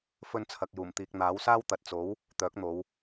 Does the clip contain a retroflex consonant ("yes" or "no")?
no